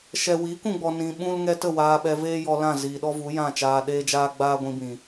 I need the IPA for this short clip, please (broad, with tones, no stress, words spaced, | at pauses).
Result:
ʃɛ˨wiː˨˦k ũ˧ɡ͡bɔ˧nĩ˧ ɓũ˦l ŋɛ˧tə˦˨ waː˧ɓɛ˧veː˦jɔ˧ lã˦˨ ziː˨ɗɔ˦vu˨˦ jã˦˨t͡ʃaː˧ɗeː˦d͡ʒaː˦ ɡ͡baː˦ɡʷĩ˧bĩ˨